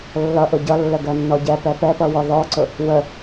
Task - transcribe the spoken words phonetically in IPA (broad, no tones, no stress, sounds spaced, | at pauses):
lː ʌ ʔ ʊ ɟ ʌ lː ə ɡ ɜ nː ɔ ɟ ɛ p ɛ p ɛ p ʌ w ɔ ð ɔ ǀ ʊ | w ə